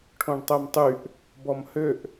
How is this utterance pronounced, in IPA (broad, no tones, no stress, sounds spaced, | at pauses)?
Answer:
ʈʰ õ ɳ tˤ œ m tˤ y ʔ | b ɔ m h ø ʔ